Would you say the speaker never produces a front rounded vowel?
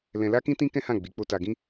yes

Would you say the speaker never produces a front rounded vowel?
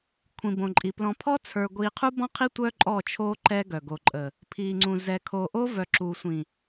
no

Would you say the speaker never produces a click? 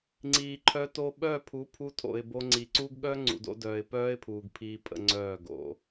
no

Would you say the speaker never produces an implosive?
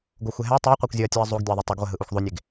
yes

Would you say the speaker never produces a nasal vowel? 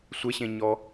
no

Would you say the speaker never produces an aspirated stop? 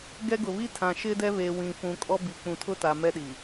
no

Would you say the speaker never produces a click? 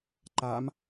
no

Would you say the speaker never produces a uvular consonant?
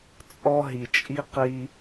no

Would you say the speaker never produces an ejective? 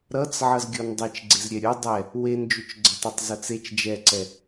yes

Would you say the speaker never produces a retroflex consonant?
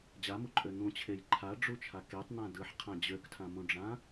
no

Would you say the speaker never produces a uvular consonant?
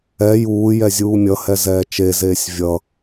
yes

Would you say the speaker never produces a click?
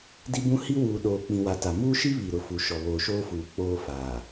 yes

